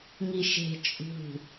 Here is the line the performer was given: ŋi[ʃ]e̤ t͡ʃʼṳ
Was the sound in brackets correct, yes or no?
yes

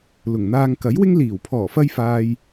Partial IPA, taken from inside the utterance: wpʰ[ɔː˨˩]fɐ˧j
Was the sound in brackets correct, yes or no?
yes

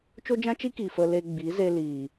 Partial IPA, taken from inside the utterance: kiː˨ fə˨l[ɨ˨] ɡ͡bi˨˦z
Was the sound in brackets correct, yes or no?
no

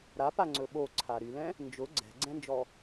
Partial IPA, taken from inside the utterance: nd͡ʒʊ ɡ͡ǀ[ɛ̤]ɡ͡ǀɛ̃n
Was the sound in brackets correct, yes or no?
yes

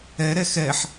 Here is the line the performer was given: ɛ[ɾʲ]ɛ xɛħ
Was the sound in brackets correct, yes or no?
no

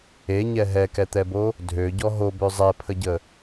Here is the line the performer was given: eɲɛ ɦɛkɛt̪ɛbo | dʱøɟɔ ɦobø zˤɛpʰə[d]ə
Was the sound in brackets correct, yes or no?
no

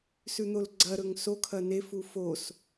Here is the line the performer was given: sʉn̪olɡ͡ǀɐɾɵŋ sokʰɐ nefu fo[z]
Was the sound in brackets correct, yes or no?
no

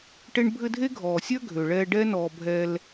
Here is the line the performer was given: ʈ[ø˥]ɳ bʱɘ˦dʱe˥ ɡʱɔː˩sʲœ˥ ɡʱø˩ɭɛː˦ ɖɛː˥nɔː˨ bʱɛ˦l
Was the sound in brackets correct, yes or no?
no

